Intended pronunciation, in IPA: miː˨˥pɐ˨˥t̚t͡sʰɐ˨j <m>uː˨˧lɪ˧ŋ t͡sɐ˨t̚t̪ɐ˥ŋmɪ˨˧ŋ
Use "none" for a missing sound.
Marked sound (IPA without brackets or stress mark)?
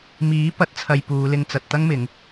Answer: p